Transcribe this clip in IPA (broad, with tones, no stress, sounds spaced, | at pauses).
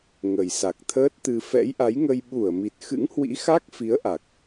ŋ ə˨˩ j s a˨˩ k̚ t̪ʰ əː˦˥ t̚ t̪ ɨ˧ f ɛ̰˧˥ j ʔ a˨˦ j ŋ ə˧ j ɓ u˧˩ ə̯ m i˨˩ t̚ x ɨ̰˧˥ ŋ h w ḭ˧˥ x a˦˥ k̚ f i˨˦ ə̯ ʔ a˨˩ k̚